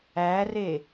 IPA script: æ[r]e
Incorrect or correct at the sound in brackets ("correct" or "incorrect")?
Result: correct